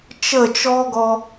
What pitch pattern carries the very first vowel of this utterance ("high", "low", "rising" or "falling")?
falling